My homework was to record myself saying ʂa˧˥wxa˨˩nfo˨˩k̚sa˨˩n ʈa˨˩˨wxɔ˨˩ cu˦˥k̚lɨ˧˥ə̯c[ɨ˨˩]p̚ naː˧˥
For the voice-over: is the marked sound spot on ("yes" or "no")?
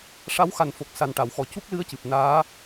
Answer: yes